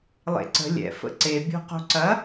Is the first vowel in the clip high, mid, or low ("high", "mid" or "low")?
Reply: mid